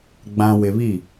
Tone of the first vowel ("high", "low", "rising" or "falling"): low